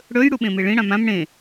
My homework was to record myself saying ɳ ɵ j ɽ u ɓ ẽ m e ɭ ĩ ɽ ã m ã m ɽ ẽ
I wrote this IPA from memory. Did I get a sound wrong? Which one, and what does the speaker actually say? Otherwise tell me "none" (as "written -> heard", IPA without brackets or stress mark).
ɳ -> ɽ